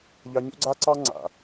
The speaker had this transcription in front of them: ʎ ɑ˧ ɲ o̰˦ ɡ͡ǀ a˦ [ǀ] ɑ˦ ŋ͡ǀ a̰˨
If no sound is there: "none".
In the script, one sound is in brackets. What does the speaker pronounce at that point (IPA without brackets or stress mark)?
ǀ